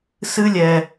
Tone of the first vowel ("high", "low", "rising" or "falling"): high